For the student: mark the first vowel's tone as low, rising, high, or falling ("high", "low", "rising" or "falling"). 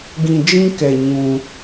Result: low